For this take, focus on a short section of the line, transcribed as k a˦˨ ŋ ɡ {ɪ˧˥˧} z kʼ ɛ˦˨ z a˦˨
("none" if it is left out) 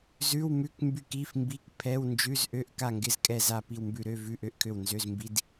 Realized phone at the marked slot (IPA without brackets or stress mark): ɪ˧˥˧